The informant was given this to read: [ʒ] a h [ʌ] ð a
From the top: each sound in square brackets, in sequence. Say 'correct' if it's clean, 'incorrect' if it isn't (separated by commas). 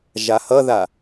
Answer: correct, correct